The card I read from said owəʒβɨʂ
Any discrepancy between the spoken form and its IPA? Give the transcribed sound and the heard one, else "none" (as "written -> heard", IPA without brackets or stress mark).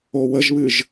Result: ʂ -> ʒ